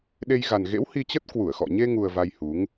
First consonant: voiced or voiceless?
voiced